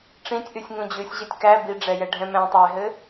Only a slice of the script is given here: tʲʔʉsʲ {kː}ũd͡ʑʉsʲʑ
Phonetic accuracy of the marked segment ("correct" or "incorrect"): incorrect